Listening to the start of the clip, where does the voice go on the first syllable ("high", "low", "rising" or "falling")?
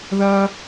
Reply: high